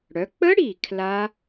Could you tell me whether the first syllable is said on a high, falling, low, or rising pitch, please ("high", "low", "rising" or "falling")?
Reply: rising